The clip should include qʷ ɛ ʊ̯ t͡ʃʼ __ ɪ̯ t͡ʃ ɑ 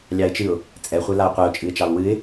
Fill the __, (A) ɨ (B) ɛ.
A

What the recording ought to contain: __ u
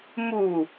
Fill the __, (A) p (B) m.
B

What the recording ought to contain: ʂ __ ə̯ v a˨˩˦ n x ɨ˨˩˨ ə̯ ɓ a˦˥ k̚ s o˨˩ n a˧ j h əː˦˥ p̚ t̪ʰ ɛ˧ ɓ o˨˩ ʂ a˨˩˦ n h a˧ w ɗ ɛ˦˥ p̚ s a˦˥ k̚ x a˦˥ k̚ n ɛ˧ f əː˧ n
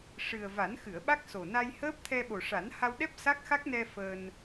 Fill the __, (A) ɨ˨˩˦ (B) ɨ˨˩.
B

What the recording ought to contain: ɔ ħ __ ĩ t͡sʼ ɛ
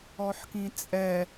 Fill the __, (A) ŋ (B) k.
B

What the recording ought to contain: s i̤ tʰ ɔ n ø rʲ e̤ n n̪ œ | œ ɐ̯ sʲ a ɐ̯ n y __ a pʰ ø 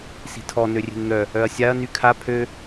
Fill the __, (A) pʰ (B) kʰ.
B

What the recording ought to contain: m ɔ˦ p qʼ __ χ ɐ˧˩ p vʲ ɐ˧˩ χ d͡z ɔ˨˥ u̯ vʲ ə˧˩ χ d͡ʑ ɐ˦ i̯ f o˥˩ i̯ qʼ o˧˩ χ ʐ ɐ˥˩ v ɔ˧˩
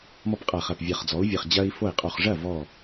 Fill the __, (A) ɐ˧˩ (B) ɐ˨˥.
A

